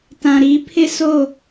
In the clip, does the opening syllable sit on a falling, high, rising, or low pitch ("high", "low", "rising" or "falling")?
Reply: low